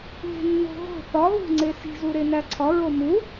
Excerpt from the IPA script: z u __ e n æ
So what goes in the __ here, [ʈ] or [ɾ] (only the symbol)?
ɾ